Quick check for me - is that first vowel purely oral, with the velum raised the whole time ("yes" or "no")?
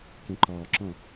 no